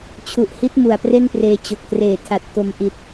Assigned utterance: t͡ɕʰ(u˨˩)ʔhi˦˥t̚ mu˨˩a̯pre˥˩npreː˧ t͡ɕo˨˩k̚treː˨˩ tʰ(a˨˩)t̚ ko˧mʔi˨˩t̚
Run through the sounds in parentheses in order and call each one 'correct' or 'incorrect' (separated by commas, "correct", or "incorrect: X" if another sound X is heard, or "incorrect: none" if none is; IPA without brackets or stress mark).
correct, correct